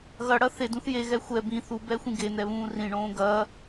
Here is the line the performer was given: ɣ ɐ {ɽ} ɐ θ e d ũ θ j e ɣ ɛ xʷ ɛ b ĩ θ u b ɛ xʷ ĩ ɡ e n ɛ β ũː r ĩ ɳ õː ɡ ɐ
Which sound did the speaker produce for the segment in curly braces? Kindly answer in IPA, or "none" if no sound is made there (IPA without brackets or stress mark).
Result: ɽ